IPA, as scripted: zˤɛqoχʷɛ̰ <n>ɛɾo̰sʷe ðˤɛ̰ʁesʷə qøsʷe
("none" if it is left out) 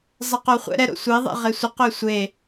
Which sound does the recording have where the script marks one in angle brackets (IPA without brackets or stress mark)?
ɾ